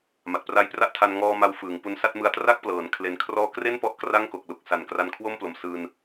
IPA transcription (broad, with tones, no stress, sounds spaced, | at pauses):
m a˨˩ t̚ p r a˦˥ j p r a˥˩ ʔ tʰ a˧ n ŋ ɔː˧ m a˧ w f ɯː˩˦ ŋ p u˧ n s a˥˩ t̚ m ɯ˧ a̯ t r a˥˩ k̚ p l ɤː˩˦ n kʰ l e˧ n kʰ r ɔː˥˩ k r e˥˩ n p ɔ˦˥ ʔ k r a˥˩ ŋ k o˨˩ k̚ l u˨˩ k̚ s a˨˩ n k r a˧ n kʰ w o˥˩ m p l o˨˩ m s ɯː˧ n